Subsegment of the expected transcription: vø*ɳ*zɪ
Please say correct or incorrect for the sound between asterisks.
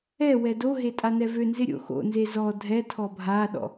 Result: incorrect